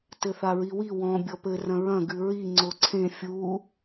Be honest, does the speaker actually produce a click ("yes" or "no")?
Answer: yes